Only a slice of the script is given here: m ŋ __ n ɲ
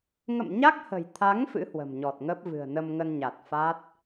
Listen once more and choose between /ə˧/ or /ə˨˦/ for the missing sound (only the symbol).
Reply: ə˧